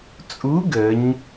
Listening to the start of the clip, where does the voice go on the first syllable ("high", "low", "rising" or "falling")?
rising